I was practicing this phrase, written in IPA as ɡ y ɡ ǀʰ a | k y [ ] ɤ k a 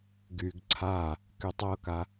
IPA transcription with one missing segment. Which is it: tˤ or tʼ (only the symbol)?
tˤ